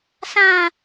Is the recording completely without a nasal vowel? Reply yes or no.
no